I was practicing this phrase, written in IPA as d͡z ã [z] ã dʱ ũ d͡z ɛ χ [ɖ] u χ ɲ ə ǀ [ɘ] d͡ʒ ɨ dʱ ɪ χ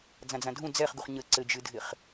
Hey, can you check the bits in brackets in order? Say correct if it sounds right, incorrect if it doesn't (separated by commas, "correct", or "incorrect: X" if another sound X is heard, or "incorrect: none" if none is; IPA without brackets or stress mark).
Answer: incorrect: d͡z, incorrect: ɡ, correct